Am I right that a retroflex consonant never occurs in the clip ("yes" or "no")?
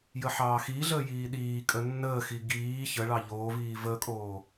no